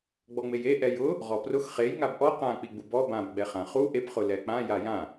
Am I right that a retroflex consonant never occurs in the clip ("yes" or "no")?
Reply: yes